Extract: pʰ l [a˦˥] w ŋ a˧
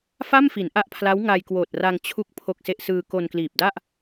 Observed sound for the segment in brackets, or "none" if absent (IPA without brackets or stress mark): a˦˥